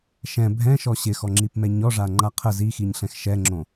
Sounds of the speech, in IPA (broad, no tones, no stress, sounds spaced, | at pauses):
ʃ ɛ̃ bʱ ɛ̃ ʃ ɔ ɕ ɪ x ɔ ŋ͡ǁ i p m ɛ ɲ ɔ ʐ a ŋ͡ǃ a qʰ ə z i x i ɲ ɬ ɛ̃ x ʃ ɛ ŋ͡ǁ õ